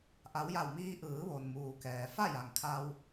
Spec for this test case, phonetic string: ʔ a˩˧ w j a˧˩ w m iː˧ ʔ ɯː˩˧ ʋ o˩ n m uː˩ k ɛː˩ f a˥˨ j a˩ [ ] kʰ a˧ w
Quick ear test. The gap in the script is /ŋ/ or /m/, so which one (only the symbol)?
ŋ